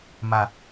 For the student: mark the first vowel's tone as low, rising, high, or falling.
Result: low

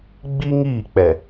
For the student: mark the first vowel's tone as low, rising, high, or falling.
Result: high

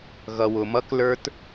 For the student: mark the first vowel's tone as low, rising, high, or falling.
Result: low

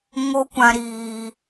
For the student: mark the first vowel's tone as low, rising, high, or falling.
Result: high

